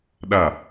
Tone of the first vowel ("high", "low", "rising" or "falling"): falling